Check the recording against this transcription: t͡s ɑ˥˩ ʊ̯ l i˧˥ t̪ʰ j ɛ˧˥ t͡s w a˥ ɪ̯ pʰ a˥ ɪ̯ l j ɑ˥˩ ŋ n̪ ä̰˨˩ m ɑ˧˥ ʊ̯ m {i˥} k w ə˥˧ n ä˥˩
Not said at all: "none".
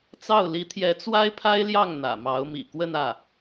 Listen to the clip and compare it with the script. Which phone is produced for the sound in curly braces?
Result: ḭ˨˩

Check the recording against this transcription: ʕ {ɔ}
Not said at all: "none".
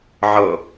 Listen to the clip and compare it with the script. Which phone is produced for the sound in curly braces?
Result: ɤ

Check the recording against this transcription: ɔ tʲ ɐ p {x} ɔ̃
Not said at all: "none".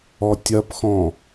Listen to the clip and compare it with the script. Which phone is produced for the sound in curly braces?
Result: x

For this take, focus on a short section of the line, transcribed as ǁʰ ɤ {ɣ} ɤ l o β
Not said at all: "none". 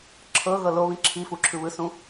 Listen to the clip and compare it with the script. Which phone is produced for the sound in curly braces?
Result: ɣ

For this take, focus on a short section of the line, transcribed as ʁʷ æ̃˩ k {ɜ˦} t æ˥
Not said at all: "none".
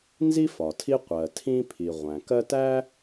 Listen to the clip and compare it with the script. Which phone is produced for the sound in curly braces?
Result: ɜ˦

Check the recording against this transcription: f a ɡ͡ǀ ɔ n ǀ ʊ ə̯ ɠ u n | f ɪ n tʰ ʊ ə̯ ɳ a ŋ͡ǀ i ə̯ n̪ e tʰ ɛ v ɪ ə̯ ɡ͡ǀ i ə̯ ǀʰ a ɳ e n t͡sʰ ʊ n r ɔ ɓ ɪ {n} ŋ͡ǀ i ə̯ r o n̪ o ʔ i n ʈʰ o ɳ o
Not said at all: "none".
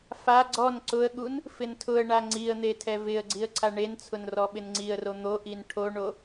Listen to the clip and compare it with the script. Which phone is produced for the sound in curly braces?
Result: n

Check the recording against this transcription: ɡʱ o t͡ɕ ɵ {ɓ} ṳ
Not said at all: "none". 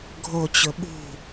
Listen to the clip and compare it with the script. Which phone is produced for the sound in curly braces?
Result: ɓ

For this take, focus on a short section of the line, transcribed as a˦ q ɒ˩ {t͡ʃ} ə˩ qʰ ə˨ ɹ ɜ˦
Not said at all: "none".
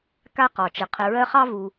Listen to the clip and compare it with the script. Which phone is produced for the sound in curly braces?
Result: t͡ʃ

